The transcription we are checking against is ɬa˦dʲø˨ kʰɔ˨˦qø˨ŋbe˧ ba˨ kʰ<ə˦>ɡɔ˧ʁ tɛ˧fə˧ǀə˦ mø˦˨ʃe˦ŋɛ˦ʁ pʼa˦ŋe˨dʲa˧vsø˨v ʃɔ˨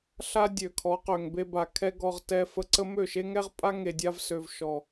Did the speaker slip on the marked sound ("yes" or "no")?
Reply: yes